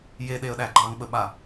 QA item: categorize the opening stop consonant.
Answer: implosive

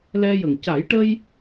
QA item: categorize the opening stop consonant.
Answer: plain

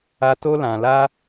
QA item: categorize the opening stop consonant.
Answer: plain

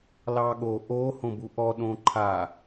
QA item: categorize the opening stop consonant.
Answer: implosive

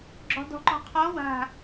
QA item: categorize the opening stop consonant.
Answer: click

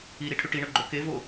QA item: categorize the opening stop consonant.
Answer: aspirated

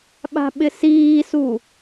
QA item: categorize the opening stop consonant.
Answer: implosive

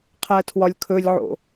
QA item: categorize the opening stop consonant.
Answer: aspirated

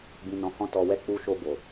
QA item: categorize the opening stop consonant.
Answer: plain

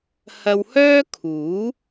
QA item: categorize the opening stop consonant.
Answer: aspirated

